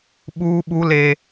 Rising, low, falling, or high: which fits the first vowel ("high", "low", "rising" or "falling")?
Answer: high